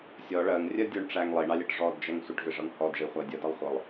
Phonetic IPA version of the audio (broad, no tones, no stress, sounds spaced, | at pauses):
sʲ ɔ ɭ ɜ ŋ rʲ ɜ dʲ u ɳ ʈ͡ʂ æ ŋ lˠ i ɳ ɑ lʲ ɜ ʈ ʐ ɔ d d͡ʒ æ ŋ sʷ ɪ ʈ v ɪ ʐ ʌ ŋ h ɔ d ʐ i χʷ æ dʲ ʌ d ʌ lˠ χʷ ʌ lˠ